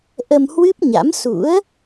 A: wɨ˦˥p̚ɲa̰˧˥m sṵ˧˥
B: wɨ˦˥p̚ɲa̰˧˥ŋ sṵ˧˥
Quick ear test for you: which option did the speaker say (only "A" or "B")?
A